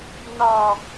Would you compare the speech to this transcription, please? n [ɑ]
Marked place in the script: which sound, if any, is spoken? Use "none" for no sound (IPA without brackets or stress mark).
ɑ